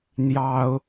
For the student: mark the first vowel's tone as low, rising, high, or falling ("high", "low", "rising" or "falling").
high